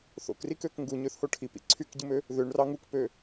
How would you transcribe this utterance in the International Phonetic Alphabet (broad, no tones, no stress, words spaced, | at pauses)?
θo̰krikøk ŋɡuɲøθho ʈʰipḭ ǀʰykɟɯmø | ðøɳrɑ ŋukpø